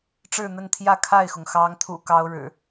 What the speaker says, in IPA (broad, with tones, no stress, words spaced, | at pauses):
ʈ͡ʂɻ̩˥˨n̪ə˥˨nt̪ʰjä˥˨ kʰa˥˨ɪ̯xʊ˩ŋ xɑ˨˦ŋt̪ʰṵ˨˩ kɑ˦ʊ̯ɻɻ̩˨˩